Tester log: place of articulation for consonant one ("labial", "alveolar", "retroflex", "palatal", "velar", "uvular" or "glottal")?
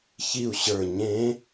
palatal